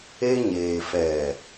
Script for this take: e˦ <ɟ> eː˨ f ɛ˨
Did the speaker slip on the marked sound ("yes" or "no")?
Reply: yes